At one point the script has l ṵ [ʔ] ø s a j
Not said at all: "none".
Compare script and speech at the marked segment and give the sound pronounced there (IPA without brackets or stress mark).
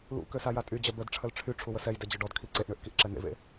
k